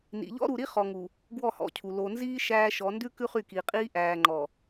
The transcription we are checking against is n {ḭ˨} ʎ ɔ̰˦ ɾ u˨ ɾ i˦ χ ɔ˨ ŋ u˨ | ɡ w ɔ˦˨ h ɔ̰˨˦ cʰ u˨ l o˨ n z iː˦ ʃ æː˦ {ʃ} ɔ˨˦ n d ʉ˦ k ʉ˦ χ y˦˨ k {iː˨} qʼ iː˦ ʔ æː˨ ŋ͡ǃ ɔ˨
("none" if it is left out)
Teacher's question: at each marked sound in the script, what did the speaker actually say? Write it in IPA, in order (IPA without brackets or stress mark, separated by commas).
ḭ˨, ʃ, iː˨